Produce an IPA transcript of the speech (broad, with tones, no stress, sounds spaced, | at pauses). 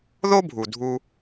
ð o˥ bʱ u˩ dʱ u˧